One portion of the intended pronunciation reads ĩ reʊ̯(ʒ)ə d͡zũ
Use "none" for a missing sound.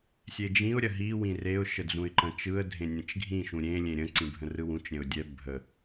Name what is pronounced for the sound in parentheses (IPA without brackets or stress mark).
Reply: ʃ